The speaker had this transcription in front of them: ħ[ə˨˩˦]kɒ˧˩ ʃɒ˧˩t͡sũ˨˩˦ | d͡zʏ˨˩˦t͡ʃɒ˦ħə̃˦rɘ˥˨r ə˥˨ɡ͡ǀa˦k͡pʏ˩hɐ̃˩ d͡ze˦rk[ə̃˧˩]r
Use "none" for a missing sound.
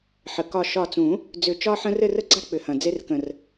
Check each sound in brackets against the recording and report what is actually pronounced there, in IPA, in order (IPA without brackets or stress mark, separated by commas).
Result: ə˩, ə̃˧˩